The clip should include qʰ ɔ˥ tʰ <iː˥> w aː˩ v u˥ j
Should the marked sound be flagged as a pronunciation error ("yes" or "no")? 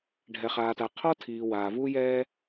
yes